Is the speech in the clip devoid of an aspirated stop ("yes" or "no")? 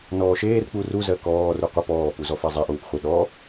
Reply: yes